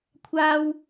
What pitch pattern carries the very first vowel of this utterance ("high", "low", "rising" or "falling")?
high